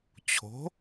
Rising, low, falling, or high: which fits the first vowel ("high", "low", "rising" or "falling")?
rising